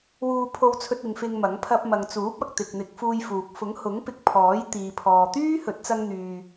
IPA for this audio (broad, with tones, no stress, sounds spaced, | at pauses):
w uː˧ pʰ o˧ w t͡sʰ ɵ˧ t̚ ɪ˨˧ ŋ f ɪ˧ ŋ m ɐ˨˥ ŋ pʰ ɐ˧ p̚ m ɐ˨ ŋ t͡s uː˨˥ p̚ ɐ˨ k̚ t̪ ɪ˨ k̚ n̪ ɪ˨˥ k̚ f uː˧ j f uː˨ k̚ f ʊ˨˥ ŋ h ʊ˨˥ ŋ p ɪ˧ k̚ pʰ ɔː˨˥ j t̪ iː˨ pʰ ɔː˨ t̪ yː˥ h ɵ˨˥ t̚ t͡s ɐ˧ ŋ n̪ yː˨